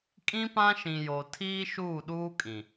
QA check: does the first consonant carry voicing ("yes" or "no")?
no